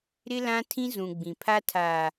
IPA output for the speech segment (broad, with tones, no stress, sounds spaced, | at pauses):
ɾ ɪ˦ l ã˦ tʰ ĩ˦ z ũ˨ ɡ͡b ĩ˨ pʰ a˦ tʰ aː˨